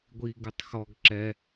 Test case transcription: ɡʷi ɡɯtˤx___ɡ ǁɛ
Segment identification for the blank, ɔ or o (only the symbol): ɔ